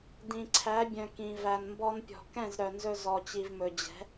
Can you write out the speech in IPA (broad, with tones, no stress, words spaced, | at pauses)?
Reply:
dĩ˨ǀʰæ˨˦bʲœ̃˨ kĩ˨ væ˨nmbɔ˧npʲɔ̤˨ kɛ̃˦˨zɾœ˨nzɵ˧ zɔ˨ t͡ɕi˨vmɵ˨d͡ʑɛ̤˨˦